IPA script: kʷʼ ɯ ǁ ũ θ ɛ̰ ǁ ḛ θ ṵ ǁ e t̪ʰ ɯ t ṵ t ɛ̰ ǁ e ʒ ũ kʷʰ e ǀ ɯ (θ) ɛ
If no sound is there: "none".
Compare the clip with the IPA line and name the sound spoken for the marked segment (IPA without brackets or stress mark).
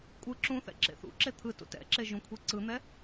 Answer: n̪